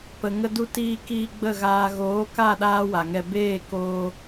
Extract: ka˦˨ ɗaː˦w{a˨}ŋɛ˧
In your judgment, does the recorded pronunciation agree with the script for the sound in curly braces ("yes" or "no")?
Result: yes